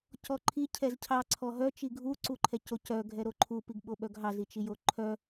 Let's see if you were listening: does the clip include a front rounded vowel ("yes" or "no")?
yes